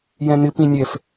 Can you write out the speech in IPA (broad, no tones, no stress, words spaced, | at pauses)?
jɛ̃n̪ɪ pĩnʲɛf